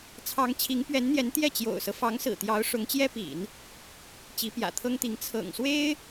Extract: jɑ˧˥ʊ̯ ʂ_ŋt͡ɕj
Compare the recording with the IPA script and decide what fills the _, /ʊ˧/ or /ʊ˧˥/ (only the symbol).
ʊ˧˥